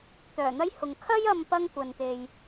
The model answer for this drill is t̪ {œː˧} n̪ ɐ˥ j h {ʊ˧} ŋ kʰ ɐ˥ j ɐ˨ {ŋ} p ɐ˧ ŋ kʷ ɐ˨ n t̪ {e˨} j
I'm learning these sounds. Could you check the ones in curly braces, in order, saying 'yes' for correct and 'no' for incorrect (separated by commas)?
no, no, no, yes